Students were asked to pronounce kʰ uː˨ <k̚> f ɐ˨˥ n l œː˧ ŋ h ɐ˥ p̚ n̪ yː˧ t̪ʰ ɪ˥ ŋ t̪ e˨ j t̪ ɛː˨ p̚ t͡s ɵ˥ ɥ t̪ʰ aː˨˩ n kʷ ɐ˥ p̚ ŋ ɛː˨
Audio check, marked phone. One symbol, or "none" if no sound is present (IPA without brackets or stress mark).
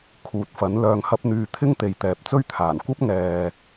t̚